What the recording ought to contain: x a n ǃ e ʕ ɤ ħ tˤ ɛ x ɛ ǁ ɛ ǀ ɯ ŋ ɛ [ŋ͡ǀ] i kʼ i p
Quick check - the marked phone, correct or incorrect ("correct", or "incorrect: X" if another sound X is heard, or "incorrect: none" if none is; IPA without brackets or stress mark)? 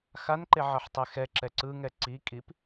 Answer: incorrect: ǀ